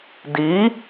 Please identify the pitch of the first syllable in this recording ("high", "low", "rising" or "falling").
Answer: rising